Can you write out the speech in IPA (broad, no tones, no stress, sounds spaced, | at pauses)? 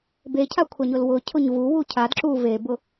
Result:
b e cʰ a kʷʰ a ɲ ʊ l w ʊ cʰ ʊ ɲ v u w u cʰ a d ǁ u v e b ʊ